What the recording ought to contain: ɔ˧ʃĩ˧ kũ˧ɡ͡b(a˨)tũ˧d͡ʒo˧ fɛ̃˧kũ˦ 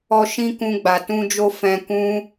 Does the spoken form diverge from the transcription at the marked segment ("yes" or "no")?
no